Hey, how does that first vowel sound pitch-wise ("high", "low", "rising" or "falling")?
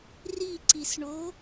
falling